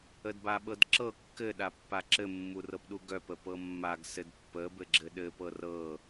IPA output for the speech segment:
ədbaɓɤdǁɤ kːɘɗapːa ǁɘmːurɤpɗu ɡœpə pɤmːaɡ sɘdpːə bɘɡ͡ǁɘɗɘpɤ rɤ

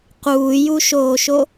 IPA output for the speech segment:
quːjuʃoːʃo

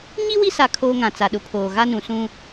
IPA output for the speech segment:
ɲi˦ wi˦sa˨ kʰoː˦ŋã˨t͡sa˨ ɗʊ˨pʰoː˨ɣa˦nũ˨ sũ˦

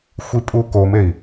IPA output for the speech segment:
xʷipʼukomei̯

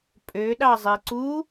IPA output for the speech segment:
pʼøɗɑzˤi ǀu

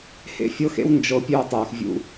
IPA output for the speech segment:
hḛ˦fʲɤ˦xḛ˦w nd͡ʒɤ˨ pʲøː˦tˤøː˨x vʲṵ˦

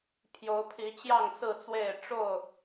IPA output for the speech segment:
pʰjo˨˦ʊ̯ pʰi˨˦t͡ɕjɑ˥˨ŋ sɹ̩˥˨t͡swe˥˨ɪ̯ ʈ͡ʂo˥˨ʊ̯

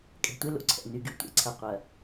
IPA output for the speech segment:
kʼɛ̤˨tʷe˦ lo̰˦ǀʰɛ̰˨ ny˨ɡy˨tʷḛ˨˦ǀʰɐ˨ qʷɐ˨

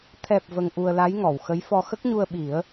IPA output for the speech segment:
t̪ʰɛ˨˩p̚ və˧ŋʔu˧ə̯la˧˥jŋɔ˨˩˨w xə˧˥jfɔ˧ xə˦˥k̚ɲu˧ə̯ɓi˨˩˦ə̯

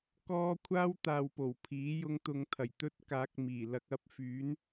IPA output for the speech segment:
kɔː˥ kʷʰaː˥w t̪aː˨wpo˨˩w pʰiː˨˥jʊ˧ŋt̪ʊ˨˧ŋt̪ʰɐ˨˩j t̪ɵ˥t̚kaː˨˥k̚miː˨˩ lɐ˨k̚ɐ˧p̚ fyː˨˥n

